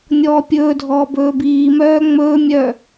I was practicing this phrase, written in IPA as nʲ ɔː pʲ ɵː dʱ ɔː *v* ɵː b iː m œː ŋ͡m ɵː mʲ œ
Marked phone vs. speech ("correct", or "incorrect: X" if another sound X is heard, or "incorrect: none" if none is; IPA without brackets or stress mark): incorrect: b